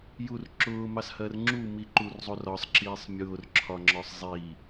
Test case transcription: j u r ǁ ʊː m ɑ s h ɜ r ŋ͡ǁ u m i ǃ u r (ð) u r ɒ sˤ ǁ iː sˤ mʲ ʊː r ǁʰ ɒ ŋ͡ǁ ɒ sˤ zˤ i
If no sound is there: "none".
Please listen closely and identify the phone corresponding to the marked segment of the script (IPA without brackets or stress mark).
zˤ